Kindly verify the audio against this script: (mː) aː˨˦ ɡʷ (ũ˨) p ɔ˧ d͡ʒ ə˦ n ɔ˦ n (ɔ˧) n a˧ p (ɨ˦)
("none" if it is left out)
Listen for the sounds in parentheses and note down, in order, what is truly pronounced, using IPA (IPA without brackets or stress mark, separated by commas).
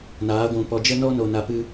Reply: n, ũ˨˦, o˧, ɨ˦